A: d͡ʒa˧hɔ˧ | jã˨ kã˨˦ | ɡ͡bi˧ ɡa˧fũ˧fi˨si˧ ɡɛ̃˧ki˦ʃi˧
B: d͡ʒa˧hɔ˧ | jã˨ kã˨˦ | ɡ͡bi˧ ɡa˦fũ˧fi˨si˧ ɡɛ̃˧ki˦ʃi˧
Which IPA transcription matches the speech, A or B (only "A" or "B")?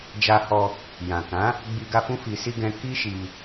A